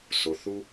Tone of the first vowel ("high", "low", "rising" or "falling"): low